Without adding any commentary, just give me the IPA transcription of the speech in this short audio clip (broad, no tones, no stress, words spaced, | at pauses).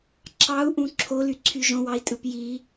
ǁɑu̯ʔũ ǁʰolyǀʰy ʒõwɑi̯tʼɯp ji